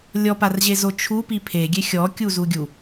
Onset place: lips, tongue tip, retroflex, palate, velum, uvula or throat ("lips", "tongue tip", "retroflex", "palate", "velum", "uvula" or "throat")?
tongue tip